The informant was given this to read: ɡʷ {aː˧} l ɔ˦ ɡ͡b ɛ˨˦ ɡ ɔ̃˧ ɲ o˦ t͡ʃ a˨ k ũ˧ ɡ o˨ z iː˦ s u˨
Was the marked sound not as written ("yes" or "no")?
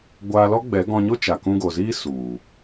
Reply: no